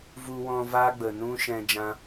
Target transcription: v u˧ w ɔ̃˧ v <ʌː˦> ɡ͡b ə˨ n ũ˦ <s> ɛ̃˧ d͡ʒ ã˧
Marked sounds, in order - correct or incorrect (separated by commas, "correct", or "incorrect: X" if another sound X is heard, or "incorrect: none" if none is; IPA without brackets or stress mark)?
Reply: incorrect: aː˦, incorrect: ʃ